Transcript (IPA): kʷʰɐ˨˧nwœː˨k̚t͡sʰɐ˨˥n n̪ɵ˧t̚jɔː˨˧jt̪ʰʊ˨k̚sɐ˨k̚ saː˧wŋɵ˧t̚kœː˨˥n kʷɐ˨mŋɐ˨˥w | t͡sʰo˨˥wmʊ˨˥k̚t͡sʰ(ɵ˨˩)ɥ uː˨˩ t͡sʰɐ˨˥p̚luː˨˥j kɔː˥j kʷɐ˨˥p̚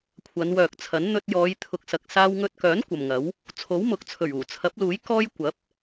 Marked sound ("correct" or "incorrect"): correct